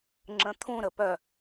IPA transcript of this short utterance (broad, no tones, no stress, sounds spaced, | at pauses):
ŋ͡ǁ ə̃ t̪ʰ ũ ɾ ə p œ